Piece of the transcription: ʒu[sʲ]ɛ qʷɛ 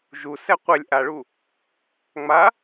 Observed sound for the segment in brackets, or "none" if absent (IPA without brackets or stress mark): s